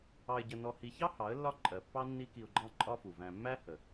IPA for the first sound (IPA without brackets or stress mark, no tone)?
ɑ